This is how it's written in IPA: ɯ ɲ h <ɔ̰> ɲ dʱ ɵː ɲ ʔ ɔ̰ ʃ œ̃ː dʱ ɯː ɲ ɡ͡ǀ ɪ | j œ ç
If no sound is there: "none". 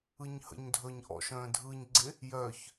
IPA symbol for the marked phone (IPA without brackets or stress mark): ə̰